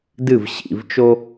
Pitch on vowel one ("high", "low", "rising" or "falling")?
falling